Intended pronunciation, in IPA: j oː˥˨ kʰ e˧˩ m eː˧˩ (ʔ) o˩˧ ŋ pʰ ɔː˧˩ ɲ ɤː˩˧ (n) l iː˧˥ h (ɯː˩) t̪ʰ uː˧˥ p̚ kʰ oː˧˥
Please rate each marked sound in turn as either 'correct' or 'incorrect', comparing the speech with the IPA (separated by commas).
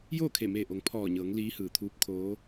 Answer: correct, incorrect, correct